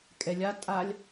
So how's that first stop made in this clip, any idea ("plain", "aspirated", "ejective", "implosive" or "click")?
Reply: ejective